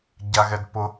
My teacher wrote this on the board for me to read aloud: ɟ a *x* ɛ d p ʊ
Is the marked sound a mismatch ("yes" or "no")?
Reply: yes